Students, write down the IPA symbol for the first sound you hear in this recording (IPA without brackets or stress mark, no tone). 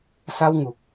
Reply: s